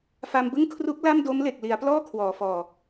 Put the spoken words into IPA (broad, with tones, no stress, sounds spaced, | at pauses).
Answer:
f a˧ m b ɯ˥˩ ŋ kʰ r u˦˥ k̚ l a˥˩ m d o˦˥ m l e˨˩ k̚ l i˩˦ a̯ p l ɔː˥˩ kʰ w ɔː˩˦ f ɔː˨˩